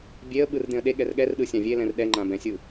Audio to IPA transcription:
bʲ e ə̯ ɓ ɯ r d̪ ẽ ə̯ ɗ e ɠ ɛ r ɠ ɛ r ɗ ɯ sʲ ã vʲ e l ɛ̃ r ɗ ɛ ŋ͡ǃ ã b ɛ̃ sʲ ɯ

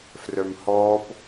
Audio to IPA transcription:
f r œ m h ɔː p

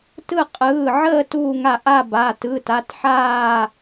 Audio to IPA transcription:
t ɯ˦˨ qʼ ɯː˩˧˩ ʕ əː˦˨ t uː˦˨ ŋ a˦˨ ʔ a˦˨ b a˩˧˩ t ɯ˩˧˩ t a˩˧˩ t ħ aː˦˨

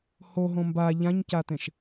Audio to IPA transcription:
h o ɦ õ m b a ʎ ã ɲ c a t̪ ẽ ʃ

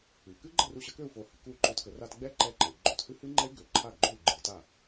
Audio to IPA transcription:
ɨ˩ k ɨ˦˥ ɡ͡ǃ ə˥˩ r u˧ ɕ ə˨˩˦ k ø˥˩ u̯ f o˨˩˦ h ɨ˩ k u˥˩ y̯ ǃ o˧ t k ə˨˩˦ r a˧ t ɡ͡b ɛ˦˥ ǃ ɛ˧ ǃ ə˩ i̯ ɡ͡ǃ o˥˩ t h ɨ˦˥ h ɨ˦˥ ŋ͡ǃ ɛ˦˥ y̯ ɡ ø˩ ǃʰ a˥˩ ɡ ɡ͡ǃ o˥˩ y̯ ɡ͡ǃ ɨ˨˩˦ t a˥˩

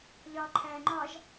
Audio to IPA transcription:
ʎ ɒ ǃʰ æ ŋ͡ǃ ɒ ʒ

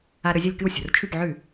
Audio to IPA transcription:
a˧ ɾ ɵ˧ zʲ ɐ˥˩ lʲ k ɨ˥˩ w sʲ o̤˩ r t͡ʃʰ ʉ˥˩ p ʕ ʉ˥˩

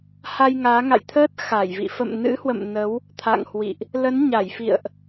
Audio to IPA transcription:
h a˧ j ŋ aː˨˦ ŋ a̰˧˨ j t̪ʰ əː˦˥ t̚ x a˧˩ j v ḭ˧˨ f ə̰˧˨ m n ɨ̰˧˥ h w ə̰˧˨ m n ə˨˦ w | t̪ʰ a̰˧˨ ŋ h w ḭ˧˨ ʔ | l ə˨˦ n ɲ a˧˩ j f ḭ˧˨ ə̯ ʔ

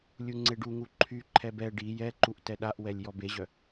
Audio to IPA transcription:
lʲ u ŋ͡ǀ e ɖ u ŋ u ǃʰ y ǃʰ ɛ b ɛ ɖ i j ɛ ǃ u ʔ t ɛ ɗ a ʔ w ɛ lʲ j ɔ b e ʑ œ

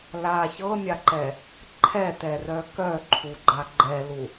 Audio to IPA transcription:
l a ç ɤ mʲ a ǃ ɛ | ǃʰ ɛ t ɛ r œ k œ ǃʰ u ɡ͡ǃ a ɡ͡ǃ ɛ l u

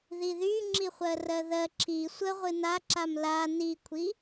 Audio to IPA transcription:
ð i ð y ŋ͡ǁ i χʷ ɜ r ɜ ð ɜ ǁʰ i sʷ ə ʁʷ ɨ n a ǁ a m l a n i kʷʰ i

